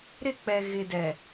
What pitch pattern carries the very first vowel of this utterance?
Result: falling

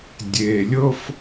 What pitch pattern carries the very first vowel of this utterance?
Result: low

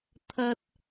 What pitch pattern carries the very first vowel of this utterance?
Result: high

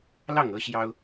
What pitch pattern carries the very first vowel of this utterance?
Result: falling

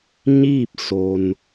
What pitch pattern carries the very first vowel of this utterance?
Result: falling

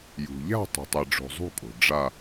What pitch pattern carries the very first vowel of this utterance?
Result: low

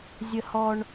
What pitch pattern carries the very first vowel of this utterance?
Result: low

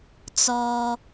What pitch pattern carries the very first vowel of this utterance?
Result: low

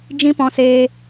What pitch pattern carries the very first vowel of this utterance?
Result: high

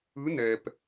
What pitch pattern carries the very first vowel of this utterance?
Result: rising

